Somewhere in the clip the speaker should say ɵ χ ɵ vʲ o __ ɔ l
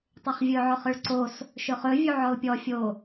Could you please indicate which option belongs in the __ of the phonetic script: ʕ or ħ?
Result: ʕ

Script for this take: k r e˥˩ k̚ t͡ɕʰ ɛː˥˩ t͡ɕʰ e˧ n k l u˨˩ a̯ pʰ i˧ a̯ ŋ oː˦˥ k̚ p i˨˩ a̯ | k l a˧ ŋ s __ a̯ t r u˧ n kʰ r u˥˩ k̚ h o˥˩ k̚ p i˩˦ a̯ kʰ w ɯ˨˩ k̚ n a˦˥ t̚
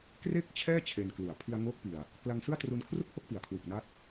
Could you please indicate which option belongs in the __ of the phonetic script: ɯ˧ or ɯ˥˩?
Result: ɯ˥˩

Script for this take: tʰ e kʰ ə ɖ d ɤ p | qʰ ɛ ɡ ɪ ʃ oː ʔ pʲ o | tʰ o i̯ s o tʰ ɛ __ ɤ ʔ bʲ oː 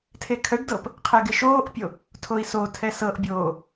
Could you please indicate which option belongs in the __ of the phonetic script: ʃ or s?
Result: s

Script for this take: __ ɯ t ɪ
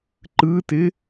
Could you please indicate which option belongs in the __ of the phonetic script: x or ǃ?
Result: ǃ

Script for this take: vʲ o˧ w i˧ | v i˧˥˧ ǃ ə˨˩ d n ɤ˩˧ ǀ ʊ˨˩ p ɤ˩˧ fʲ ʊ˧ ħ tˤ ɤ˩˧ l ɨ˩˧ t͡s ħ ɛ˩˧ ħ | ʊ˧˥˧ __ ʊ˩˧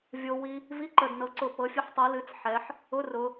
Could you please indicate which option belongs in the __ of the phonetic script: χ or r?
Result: r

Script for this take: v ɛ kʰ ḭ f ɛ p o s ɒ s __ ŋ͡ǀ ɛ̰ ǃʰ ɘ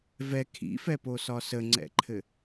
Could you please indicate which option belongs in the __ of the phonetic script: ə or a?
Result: ə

